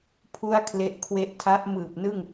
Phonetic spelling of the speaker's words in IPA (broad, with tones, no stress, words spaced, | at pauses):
pʰu˥˩a̯kʰle˦˥ʔ kʰwe˦˥ʔtʰa˦˥ʔmɯː˨˩p̚nɯ˥˩ŋ